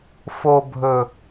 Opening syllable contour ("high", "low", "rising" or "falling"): low